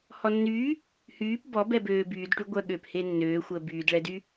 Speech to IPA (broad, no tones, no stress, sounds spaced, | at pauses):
h ɔ nː yː | h yː p b ɔ b ɛ b øː b yː d ʈ y ɡʷ œ ɠ øː p h e nː øː xʷ əː b yː d ɭ ɛ d y